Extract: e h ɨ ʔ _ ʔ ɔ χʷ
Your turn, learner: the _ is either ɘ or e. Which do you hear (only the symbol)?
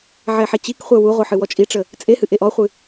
e